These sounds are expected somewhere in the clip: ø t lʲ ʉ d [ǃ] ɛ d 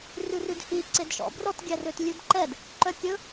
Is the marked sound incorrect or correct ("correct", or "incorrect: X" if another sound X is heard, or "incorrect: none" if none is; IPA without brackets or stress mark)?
correct